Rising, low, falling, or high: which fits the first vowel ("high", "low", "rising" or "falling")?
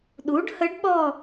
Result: rising